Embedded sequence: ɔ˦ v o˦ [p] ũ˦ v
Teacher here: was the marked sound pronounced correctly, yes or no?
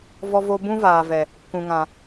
no